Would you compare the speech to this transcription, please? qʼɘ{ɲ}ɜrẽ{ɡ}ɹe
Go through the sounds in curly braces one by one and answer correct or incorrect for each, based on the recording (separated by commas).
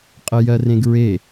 incorrect, correct